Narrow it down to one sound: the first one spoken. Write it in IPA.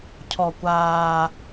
cʰ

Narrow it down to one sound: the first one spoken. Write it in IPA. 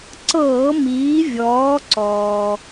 ǀ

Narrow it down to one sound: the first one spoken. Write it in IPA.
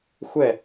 xʷ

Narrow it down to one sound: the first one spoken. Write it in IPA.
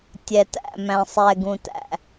tʲ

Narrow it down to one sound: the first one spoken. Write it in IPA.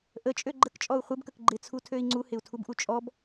ʔ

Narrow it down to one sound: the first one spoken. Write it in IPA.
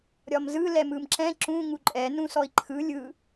ɾʲ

